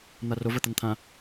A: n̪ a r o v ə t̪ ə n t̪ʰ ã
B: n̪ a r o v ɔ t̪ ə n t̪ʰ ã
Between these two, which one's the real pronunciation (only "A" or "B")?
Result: A